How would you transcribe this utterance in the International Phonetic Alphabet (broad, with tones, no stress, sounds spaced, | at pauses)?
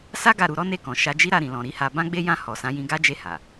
s a˦ ɡ a˦˨ ɾ u˧ ɾ ɔ˦ n e˦˨ k ɔ̃˨ ʃ a˨˦ d͡ʒ i˦ ɾ a˦˨ ɾ ĩ˨ l ɔ̃˨ ɾ i˨˦ h a˧ b ã˦ ɡ͡b e˦ j ã˦˨ h ɔ˨ s ã˨˦ j ĩ˧ ɡ a˦ d͡ʒ e˦˨ h a˨